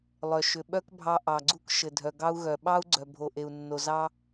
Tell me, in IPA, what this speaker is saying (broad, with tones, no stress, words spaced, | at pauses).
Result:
lˠœ˨ ʃʏ˨ɓœ˦kbʱɑ˧ ʔɑ˨ɡ͡ǀu˦kʃɘ˨dʱœ˨ ɡɑ˧u̯ɣœ˨ɓɑ˦u̯ ɡ͡ǀœ˨ bʱo˨ʔe˨u̯ nːo˨zɑ˦